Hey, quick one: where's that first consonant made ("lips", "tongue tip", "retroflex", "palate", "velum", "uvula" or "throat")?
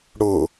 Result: retroflex